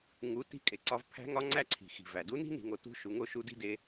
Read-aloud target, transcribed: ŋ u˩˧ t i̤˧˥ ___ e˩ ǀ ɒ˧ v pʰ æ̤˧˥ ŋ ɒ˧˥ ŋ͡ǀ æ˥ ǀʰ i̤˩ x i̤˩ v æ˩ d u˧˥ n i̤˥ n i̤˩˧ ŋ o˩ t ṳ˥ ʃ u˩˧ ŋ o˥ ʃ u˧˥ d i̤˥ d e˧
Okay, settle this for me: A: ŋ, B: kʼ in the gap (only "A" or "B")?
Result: B